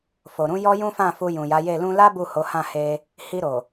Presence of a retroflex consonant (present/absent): absent